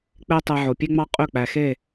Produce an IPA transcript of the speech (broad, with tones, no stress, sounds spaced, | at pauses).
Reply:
k͡p e˥ tˤ e˧ ʕ o˩ pʲ e˥ ŋ͡m ɑ˥ qʼ ø˥˩ k͡p æ˩ x e˥˩